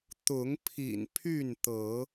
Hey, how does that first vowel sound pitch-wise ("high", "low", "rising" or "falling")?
rising